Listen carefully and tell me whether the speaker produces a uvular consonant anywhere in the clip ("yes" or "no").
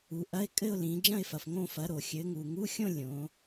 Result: no